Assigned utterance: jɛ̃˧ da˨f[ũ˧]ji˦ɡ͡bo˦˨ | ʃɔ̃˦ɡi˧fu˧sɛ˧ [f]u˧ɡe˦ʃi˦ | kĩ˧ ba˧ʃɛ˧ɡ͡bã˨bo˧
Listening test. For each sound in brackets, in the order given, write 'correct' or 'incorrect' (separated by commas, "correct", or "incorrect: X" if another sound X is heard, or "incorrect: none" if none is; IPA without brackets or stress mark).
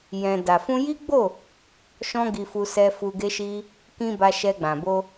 correct, correct